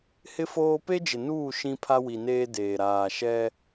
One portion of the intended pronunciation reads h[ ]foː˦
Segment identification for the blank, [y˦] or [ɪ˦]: ɪ˦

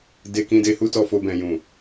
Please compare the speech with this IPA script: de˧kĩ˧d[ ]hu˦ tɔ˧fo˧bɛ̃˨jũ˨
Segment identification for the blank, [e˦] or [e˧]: e˧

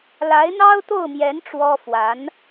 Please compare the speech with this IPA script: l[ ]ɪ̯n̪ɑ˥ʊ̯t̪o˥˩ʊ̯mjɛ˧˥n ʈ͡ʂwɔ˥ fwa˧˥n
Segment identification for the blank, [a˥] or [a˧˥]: a˧˥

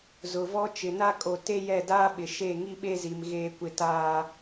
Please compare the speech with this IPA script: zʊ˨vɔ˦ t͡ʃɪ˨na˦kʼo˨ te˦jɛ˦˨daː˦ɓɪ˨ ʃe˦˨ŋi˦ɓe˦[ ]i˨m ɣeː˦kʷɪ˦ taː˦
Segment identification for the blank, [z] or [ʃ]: z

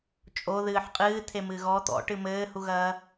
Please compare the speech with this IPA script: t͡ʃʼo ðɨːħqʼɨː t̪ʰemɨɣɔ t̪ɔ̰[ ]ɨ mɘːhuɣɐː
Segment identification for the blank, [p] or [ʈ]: ʈ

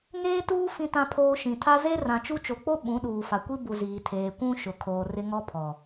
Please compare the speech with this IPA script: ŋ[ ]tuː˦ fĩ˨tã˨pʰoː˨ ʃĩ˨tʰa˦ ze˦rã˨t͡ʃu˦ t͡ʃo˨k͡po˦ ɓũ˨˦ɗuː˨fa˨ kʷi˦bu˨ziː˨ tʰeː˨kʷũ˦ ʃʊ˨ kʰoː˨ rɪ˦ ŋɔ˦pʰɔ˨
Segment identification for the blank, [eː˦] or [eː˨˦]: eː˦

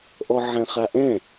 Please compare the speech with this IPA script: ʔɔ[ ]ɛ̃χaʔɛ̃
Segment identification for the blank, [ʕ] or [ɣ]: ʕ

